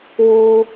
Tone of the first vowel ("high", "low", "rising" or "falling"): high